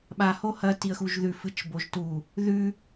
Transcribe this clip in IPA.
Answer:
ɓa hohɐ tiə̯xuʒðʉ fɨt͡ʃboʒtu | ðʉ

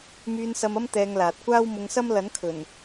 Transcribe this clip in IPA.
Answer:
myː˧nsɐ˧mɐ˥m t̪ɛː˧ŋlaː˨t̚ kʷaː˥wmʊ˧ŋsɐ˥m lɐ˨˥nkʰɵ˨˩n

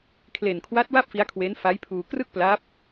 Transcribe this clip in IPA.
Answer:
kʰle˨˩nkʰwa˦˥t̚ wa˥˩p̚fi˦˥a̯kʰwe˦˥n fa˦˥jpʰuː˧ krɯ˥˩k̚pla˦˥p̚

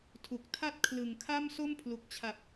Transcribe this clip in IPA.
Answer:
tʰu˨˩k̚tʰa˥˩t̚ kʰlɯ˨˩ŋkʰa˥˩m so˥˩mpʰlu˨˩k̚t͡ɕʰa˨˩p̚

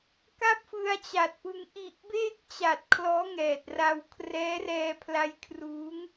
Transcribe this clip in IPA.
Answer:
ka˥˩p̚fɯ˧a̯t͡ɕa˨˩t̚pɯ˧ŋ ʔi˨˩ʔbeː˥˩k̚t͡ɕa˨˩t̚ kʰlɔː˦˥ŋɛː˨˩t̚ra˧w kʰrɛː˦˥rɛː˧pʰla˧jkʰruː˦˥ŋ

